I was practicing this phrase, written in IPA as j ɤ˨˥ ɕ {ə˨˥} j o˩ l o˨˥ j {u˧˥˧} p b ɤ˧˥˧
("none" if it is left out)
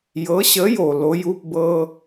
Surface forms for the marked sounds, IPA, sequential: ə˨˥, u˧˥˧

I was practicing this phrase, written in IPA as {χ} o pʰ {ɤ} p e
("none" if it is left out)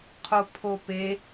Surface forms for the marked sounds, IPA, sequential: qʰ, o

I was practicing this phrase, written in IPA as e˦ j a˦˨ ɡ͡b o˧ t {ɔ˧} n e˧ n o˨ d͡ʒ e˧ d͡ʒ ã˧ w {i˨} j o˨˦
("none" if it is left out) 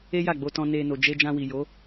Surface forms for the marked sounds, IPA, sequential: ɔ̃˧, i˨

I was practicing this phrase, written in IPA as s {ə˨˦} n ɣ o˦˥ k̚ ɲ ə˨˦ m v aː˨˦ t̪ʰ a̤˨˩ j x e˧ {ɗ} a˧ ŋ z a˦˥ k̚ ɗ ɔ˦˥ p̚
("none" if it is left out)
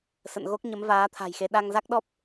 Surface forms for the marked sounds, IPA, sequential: ə̰˧˨, ɗ

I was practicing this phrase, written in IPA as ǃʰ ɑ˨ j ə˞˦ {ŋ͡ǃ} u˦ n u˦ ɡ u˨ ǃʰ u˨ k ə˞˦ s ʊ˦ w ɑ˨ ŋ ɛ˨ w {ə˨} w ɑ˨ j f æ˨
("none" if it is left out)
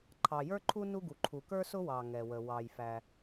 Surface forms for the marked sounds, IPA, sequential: ǃʰ, ə˨

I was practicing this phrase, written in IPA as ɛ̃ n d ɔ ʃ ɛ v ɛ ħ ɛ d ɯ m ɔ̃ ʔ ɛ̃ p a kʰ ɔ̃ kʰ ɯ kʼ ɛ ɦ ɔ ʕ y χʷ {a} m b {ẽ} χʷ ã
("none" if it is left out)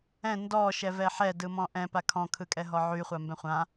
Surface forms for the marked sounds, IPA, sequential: a, ɛ̃

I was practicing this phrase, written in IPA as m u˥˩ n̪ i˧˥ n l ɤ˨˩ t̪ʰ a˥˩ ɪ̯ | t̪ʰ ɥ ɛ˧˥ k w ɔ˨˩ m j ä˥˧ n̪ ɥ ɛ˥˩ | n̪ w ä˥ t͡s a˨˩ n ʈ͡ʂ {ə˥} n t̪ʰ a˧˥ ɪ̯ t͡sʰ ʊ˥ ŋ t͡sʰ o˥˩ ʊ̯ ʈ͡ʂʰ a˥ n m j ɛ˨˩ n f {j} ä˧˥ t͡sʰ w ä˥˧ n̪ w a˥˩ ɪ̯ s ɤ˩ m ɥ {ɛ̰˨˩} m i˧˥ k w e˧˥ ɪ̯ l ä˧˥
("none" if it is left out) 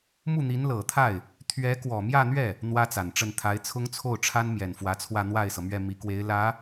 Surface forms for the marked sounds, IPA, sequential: ə˥˩, w, ɛ˥˩

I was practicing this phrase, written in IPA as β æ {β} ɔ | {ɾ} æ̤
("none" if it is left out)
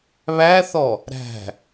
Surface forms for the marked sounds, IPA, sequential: θ, ɾ

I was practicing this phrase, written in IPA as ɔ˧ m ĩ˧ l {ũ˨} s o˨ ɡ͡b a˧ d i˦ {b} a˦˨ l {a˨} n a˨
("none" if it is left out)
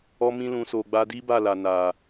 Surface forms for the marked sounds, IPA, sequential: ũ˨, b, a˨

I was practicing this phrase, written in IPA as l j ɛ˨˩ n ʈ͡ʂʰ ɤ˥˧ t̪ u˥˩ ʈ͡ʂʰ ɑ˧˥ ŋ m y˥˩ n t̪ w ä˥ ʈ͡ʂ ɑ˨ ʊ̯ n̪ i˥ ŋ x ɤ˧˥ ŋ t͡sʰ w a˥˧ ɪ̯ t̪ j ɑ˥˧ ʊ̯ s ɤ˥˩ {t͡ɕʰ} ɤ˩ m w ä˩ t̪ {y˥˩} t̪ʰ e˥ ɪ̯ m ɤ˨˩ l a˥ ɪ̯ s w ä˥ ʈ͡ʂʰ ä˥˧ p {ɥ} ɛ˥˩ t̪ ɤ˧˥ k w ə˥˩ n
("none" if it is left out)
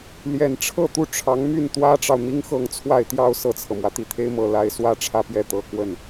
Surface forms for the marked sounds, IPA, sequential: t͡sʰ, i˥˩, j

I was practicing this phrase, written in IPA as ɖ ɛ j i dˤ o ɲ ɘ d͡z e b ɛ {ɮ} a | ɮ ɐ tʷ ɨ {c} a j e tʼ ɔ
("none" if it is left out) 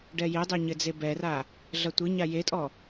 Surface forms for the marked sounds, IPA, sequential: r, ɲ

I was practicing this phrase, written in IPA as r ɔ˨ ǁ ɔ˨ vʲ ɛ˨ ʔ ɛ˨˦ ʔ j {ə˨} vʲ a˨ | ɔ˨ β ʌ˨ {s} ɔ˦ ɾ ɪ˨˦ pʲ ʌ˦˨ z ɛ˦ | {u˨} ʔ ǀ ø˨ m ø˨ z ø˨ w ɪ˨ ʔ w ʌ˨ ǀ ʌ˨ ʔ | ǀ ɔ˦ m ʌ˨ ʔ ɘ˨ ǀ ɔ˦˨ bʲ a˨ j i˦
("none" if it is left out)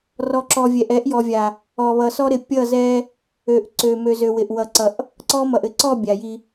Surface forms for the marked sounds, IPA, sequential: ɔ˨, s, ø˨

